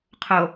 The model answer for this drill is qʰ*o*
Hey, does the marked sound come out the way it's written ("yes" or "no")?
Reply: yes